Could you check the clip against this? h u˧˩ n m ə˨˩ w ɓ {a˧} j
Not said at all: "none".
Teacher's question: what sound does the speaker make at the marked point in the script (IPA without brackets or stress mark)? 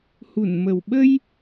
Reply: ə˧